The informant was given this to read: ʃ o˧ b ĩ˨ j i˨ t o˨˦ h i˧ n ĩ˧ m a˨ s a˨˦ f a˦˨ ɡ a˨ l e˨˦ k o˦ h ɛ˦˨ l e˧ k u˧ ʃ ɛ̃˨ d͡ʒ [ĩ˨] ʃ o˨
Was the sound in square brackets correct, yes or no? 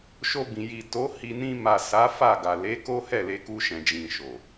yes